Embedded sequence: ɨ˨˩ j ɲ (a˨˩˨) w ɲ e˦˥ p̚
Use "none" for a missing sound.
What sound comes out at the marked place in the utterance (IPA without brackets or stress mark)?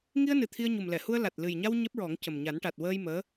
a˧